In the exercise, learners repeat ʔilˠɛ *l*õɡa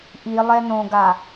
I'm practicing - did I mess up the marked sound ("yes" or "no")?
yes